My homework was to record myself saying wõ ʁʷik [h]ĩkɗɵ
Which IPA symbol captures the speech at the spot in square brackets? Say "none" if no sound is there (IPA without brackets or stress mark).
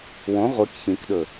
ç